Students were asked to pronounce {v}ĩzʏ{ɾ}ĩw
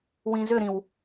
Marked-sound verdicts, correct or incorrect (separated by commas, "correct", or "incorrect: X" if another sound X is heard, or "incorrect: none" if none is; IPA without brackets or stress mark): incorrect: w, correct